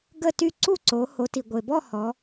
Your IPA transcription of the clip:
ɡ ə˥˨ t y˥˨ ǀ u˥˨ ǀ o˩˧ h o˩˧ t i˩ ɡʷ e˩ b ɔ˥˨ h ɔ˩˧

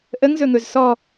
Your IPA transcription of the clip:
ʔ ə ŋ z ɵ ŋ ɵ z s ɔ

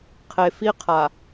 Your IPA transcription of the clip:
qʰ e˨ f i˦ qʰ a˨

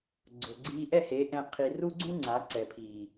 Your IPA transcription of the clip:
ɡ͡ǀ ʊ˨ ɡ͡ǀ iː˧ ʔ ɛ˦˨ h e˨˦ ʔ ɛ̃˧ qʰ i˧ r u˦ ɡ͡ǀ ũ˦ ŋ͡ǀ a˨˦ ǀ ɛ˨ pʰ iː˨

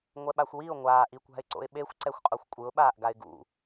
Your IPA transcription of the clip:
ŋʷ ɛ ɓ a xʷ w i ʊ̯ ŋʷ aː ʔ i kʷ a̤ ɪ̯ ǀ o̰ ɪ̯ ɓ e xʷ ǀ ɛ xʷ qʼ o xʷ kʷʼ ɯ ʊ̯ ɓ aː ʔ ɡ a ɪ̯ ɡ ṵ

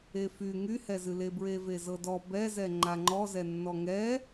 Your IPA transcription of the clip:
e f y ŋ y h ɛ z ɨ l e b ɹ e v e z ɤ d ɔ b ɛ z ɛ ŋ͡ǃ a ŋ͡ǃ ɔ z ɛ nː ɔ ŋ ɛ

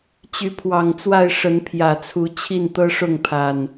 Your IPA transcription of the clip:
t͡ɕ y˨˦ pʰ w ɑ˨˩ ŋ t͡s w a˥˨ ɪ̯ ʂ ə˨˦ n pʰ j ä˨˩ t͡sʰ u˨˦ t͡ɕʰ i˥˨ n t̪ ɤ˦ ʂ ʊ˥˨ ŋ pʰ a˨˩ n

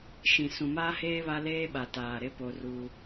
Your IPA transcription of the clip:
ʃ ĩ˨ s ũ˨ m aː˦ h eː˦ β a˦ l eː˦ ɓ a˨ t aː˨ ɾ ɪ˦ p o˦ r uː˦

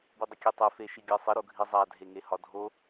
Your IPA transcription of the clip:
b i dˤ ə kʲ e tˤ e f e ʃ i ɡʲ ɜ sˤ ə ɾ o ɡʱ i zˤ a dʱ e ŋ e h ɒ dʱ o

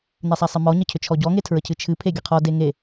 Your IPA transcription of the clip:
n e sˤ a sˤ ɨ m ɔ ɲ ə cʰ ʏ t͡ʃʰ ɔ ɟ ɔ ŋ e tʰ ɹ ə cʰ ɨ t͡ʃʰ ɨ pʰ e ɡʲ ə qʰ ɔ d e ŋ e

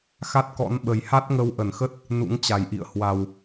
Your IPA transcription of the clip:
x a˦˥ t̚ k ɔ̰˧˥ n ɓ ə˨˩ j h a˦˥ t̚ ŋ ə˧ w ʔ ə˧˩ n x ə˦˥ t̚ | n ṵ˧˥ ŋ t͡ɕ a˨˩ j ʔ ḭ˧˨ ə̯ h w a˨˩ w

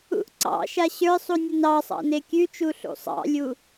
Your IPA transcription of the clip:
ṵ ʔ ǀ ɑ̰ ʃ a ɕ ə˞ sˤ u nʲ ə n ɑ sˤ ɑ̰ n e kʲ ʉ t͡ʃ u ɬ ṵ sˤ ɑ̰ lʲ u

